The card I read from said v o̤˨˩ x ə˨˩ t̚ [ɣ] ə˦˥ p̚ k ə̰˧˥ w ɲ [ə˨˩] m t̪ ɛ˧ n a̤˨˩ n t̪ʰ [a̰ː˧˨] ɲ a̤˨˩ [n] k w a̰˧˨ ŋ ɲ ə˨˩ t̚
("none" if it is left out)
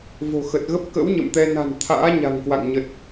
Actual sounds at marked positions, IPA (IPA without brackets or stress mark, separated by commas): ɣ, ə̰˧˨, a̰ː˧˥, ŋ